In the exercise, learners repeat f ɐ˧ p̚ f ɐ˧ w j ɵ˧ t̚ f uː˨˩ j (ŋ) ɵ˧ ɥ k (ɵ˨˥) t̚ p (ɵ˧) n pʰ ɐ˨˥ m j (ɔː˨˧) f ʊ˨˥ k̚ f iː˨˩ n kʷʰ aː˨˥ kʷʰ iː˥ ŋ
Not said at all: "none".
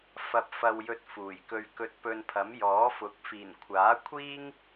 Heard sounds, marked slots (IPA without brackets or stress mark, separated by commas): k, ɵ˧, ɵ˧, ɔː˨˥